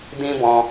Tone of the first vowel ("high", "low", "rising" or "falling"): high